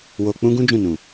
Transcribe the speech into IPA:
wo˧k͡pũ˦ɡũ˦ d͡ʒũ˦˨nũ˨

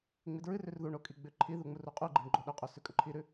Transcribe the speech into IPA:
ŋ͡midɹɨrʉr ðuɳo kʼiɡ͡bʉǃʰiðu ŋ͡muruqʼʉɡ͡ǃiɳ ɡ͡ǃoɗɵqʼo sʉkʼɵǃʰiɾʉ

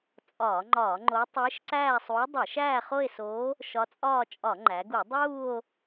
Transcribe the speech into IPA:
t͡sʼɒː˧˩˧ŋ͡ǃɒː˧˩˧ŋ͡ǃo˧˥ tˤiː˧˥ʃǀæː˥˧sˤuː˧˥ dˤi˧˩˧ʃæː˥˧χo˥˧e̯soː˧˥ | ʃɒ˧˥t͡sʼɒː˥˧ t͡ʃʼɒ˧˩˧ŋ͡ǃæ˩˧ɡu˧˩˧ dˤuː˥˧o̯

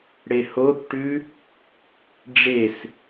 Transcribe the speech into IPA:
ɽehoθʈʉ | ɖ͡ʐes

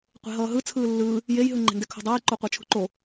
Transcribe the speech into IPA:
qʷe̤ɦʌːɦɯ t͡sʰɯːlːɯː | jejɦɯ ŋ͡ǃe̤ndɛkʰo̤dˤʌːj ǃoqʷat͡ʃʰṳǃo

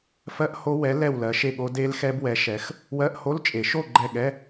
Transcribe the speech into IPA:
fɜ˦˥ʔho˦˥ wɛ˨˥ lɛ˥˨wlɜ˨˥ʃe˥˨ɠo˦˥ de˦˥lxɛ˦˥bwɛ˨˥ʃɛ˨˥x | wɜ˧˥˧ʔho˧˥˧lt͡ʃʼe˨˩˦ ʃo˥˨ ɡ͡ǃɛ˥˨ ɠɛ˧˥˧

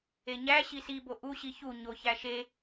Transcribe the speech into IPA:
eɲæ ɕisibo ʔuɕi çu ɲo çæʃe

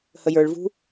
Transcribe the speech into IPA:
həjə˞ɭvṳ

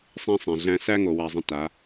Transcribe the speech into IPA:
sˤɛ̃˦sˤɛ̃˨ɮæ̃˦ sæ˦ŋo˨wa˨zˤə̃˨ ta˨˦

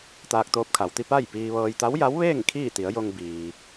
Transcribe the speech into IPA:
t̪aː˧k̚t̪oː˧p̚kʰa˩˧wt̪i˧ pa˥˨jpiː˧ʋɤː˧j t̪a˧˥wja˧˥wʋeː˥˨ŋ kʰiː˥˨t̪i˩˧ə̯jo˧ŋ biː˩

